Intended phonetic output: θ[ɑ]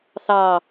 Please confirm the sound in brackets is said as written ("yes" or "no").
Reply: yes